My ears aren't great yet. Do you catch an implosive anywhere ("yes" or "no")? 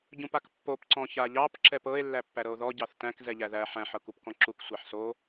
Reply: no